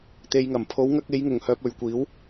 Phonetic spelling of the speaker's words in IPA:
t̪e˨jŋɐ˨˩mpʰo˨˧w ŋɐ˧k̚e˨˧jŋʊ˨˩ŋhœː˨p̚ ɵ˨ɥkʷiː˨˥w

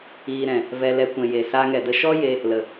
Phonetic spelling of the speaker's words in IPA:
iː˧ ɾɛ̃˨ | vɛ˧lɛ˧ kʷɛ̃˨je˨ saː˧ŋɛ˨də˧ ʃɔ˦je˧ | lə˨

